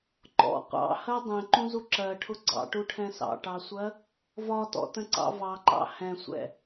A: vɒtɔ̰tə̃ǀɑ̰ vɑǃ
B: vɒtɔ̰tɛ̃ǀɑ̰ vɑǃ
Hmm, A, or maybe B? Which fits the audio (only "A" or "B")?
A